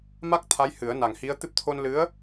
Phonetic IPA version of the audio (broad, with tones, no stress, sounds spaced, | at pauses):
m a˦˥ k̚ t̪ʰ a˧˥ j h ɨ˨˩˦ ə̯ n a˨˩ ŋ h i˧˥ ə̯ t̪ ɨ˦˥ p̚ t̪ʰ o˧ n l ɨ˧˥ ə̯